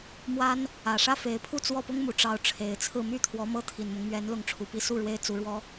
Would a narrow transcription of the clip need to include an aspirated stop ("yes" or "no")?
yes